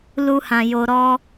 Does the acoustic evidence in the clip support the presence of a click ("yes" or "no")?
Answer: no